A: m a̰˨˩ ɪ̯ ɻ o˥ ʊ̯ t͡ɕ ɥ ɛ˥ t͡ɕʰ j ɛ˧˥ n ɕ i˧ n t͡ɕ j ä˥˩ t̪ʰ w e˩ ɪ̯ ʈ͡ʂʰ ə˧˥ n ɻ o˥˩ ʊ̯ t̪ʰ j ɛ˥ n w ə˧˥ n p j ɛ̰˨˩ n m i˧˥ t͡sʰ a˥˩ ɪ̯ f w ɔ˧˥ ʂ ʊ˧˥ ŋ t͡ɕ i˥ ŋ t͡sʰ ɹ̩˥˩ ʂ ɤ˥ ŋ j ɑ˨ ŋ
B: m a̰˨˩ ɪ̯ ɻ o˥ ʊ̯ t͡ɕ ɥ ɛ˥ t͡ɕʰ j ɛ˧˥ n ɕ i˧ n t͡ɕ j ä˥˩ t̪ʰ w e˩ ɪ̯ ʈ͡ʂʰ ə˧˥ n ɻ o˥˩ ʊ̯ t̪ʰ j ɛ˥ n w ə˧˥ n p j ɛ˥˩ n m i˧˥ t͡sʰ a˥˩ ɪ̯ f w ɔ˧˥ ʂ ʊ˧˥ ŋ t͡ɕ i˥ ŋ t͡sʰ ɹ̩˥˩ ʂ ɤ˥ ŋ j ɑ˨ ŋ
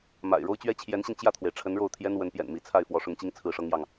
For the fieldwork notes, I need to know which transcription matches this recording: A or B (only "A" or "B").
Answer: A